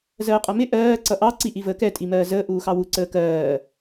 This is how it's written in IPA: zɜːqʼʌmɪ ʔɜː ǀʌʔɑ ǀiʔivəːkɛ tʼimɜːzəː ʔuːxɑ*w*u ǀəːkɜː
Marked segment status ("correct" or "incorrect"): correct